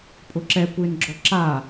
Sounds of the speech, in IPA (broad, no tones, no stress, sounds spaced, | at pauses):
pʼ ʊ ǁ ɛ kʷ ɪː n ɡ͡ǁ ɔ ǁ a